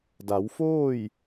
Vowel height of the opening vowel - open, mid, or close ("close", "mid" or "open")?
open